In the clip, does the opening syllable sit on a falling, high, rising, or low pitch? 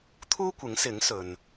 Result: high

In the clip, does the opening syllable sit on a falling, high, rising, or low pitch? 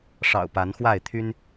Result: low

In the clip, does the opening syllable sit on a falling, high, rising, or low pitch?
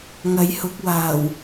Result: rising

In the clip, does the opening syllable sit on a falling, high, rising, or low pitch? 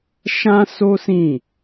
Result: high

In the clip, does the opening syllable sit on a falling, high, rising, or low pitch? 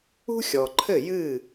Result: high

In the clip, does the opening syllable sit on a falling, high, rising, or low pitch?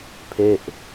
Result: falling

